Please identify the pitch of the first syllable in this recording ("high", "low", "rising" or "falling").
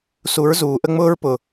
rising